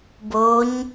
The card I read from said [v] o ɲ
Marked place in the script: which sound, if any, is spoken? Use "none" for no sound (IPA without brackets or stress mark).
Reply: b